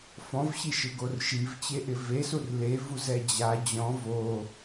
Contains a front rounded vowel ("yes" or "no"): no